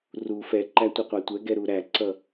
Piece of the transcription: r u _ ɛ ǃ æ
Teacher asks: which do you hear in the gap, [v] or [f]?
f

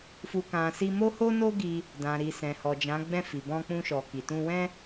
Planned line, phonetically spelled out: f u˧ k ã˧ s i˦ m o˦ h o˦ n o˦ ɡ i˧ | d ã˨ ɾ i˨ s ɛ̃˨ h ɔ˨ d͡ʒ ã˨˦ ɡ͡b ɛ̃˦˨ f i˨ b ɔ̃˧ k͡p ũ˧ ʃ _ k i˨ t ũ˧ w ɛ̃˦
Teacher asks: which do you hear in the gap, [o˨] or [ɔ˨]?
ɔ˨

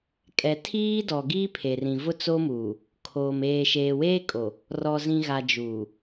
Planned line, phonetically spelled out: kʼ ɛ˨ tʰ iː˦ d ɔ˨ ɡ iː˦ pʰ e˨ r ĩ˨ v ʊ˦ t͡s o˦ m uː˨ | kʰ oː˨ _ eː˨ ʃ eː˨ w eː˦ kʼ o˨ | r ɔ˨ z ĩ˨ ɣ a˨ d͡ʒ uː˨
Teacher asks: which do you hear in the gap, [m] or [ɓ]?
m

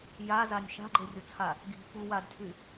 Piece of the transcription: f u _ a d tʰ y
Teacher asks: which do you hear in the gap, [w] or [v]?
w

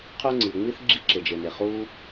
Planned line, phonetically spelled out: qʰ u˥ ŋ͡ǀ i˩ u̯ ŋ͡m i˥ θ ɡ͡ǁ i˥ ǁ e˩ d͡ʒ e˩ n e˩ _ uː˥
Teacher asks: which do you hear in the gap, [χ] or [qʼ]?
χ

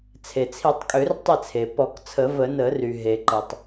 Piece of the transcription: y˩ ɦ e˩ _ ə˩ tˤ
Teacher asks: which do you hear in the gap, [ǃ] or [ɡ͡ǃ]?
ǃ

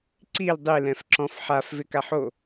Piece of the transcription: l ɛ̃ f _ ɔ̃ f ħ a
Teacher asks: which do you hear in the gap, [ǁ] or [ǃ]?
ǁ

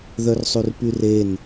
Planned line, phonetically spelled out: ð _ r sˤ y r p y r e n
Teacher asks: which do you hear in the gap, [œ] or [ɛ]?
œ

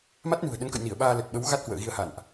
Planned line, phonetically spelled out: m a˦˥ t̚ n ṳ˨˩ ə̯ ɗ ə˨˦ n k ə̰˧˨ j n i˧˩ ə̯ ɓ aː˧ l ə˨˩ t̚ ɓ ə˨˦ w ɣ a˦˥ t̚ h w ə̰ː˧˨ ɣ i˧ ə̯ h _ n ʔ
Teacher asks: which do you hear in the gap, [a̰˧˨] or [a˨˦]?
a̰˧˨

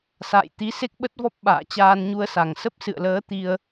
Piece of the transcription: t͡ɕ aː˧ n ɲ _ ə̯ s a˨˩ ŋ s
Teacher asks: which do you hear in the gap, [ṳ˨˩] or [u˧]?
u˧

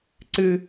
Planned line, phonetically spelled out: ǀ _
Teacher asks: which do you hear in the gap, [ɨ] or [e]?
ɨ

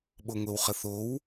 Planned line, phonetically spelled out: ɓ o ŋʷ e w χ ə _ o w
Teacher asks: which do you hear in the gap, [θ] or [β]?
θ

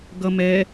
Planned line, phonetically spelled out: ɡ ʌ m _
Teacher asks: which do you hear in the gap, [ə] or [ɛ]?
ɛ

